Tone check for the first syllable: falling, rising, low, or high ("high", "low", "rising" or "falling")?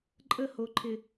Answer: falling